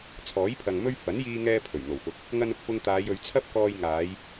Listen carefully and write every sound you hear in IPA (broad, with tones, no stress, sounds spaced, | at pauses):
t͡sʰ ɔː˨˥ j pʰ ɐ˨ ŋ m ɵ˧ ɥ f ɐ˨˥ n j iː˧ ŋ ɛː˧ pʰ ɵ˨˩ ɥ n̪ o˨˩ w f ʊ˨ k̚ | ŋ ɐ˧ n ʊ˨ k̚ p ʊ˧ ŋ t̪ aː˨˧ j ɵ˨˧ ɥ t͡sʰ ɐ˥ p̚ k ɔː˧ j ŋ aː˨˧ j